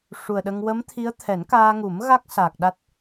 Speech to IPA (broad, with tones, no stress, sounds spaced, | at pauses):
ʂ u˨˩ ə̯ ɗ ə˧ ŋ w ə˧˥ m t̪ʰ i˧˥ ə̯ t̪ʰ ɛ˨˩˦ n k aː˧ ŋ u˨˩˦ m ɣ a˦˥ k̚ s aː˨˩ k̚ ɗ a˦˥ t̚